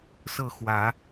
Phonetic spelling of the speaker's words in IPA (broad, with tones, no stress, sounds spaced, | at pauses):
s ɤ˥˨ x w ä˨˦